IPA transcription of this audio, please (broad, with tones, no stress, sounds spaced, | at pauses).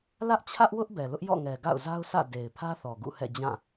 l ä˦ ʔ t͡ɕʰ ä˦ ʔ w ʊ˦ ʔ b ɛ˨ l ʊ˦ ʔ j ɔ̰˦˨ ŋ ɛ˨ ɡ a̰˦˨ ʊ̯ z a˦ ʊ̯ s ä̰˦˨ d e˨ ɪ̯ pʰ ä˦ θ ɔ˨ ɡ ṵ˦˨ h ɛ̰˦˨ d͡ʑ ã˦˨